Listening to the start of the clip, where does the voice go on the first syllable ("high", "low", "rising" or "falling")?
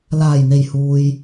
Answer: low